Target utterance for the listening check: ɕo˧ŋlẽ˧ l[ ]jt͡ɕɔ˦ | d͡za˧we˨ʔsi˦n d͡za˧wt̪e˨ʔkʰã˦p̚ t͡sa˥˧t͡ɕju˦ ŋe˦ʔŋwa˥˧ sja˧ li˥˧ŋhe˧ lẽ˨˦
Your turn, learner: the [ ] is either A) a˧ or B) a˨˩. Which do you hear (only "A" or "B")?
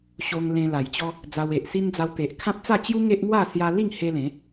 B